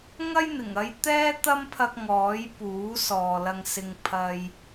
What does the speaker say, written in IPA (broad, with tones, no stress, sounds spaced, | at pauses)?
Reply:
ŋ ɐ˥ j n̪ ɪ˨˩ ŋ ɐ˧ j t̪ ɛː˥ t̪ ɐ˥ m pʰ ɐ˧ k̚ ŋ ɔː˨˥ j p uː˨˥ s ɔː˨ l ɐ˧ ŋ s ɪ˨ ŋ pʰ ɐ˧ j